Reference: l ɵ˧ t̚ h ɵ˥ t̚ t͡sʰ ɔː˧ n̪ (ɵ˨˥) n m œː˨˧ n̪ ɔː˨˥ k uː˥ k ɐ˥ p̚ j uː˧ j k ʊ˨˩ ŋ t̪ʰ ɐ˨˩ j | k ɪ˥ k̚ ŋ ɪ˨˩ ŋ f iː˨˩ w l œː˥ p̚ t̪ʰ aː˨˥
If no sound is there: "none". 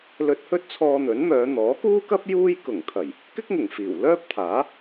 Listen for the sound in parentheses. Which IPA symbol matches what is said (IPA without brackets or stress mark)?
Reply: ɵ˨˥